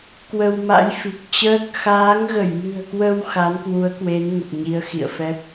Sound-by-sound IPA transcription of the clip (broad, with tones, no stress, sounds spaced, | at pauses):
k w ə˧ w m a̰˧˥ j f i˨˩ k̚ t͡ɕ əː˦˥ k̚ x aː˨˦ ŋ ɣ ə˧˩ j m ɨ̤˨˩ ə̯ k w ə˧ w x a˨˦ n k w u˨˦ ə̯ k w e˨˦ n ŋ ə˨˩ p̚ ɲ i˨˦ ə̯ x ḭ˧˨ ə̯ f ɛ˦˥ p̚